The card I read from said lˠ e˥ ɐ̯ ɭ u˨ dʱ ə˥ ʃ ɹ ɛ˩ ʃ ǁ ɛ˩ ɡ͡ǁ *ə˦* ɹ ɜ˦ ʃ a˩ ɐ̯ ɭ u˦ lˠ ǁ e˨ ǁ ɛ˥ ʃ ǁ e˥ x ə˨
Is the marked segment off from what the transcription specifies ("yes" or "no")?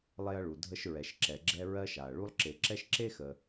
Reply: yes